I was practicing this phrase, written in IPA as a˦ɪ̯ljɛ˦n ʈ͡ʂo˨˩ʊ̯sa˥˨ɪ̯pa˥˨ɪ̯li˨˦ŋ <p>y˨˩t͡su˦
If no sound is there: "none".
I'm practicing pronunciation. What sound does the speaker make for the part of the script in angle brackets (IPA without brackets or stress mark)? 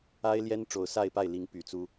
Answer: p